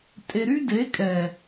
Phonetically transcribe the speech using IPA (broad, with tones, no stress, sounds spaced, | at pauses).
tʼ e˧ ɾ y˦ d e˨˦ kʼ ɛ˨